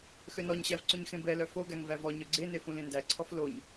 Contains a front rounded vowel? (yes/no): yes